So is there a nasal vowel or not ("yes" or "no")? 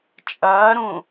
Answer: yes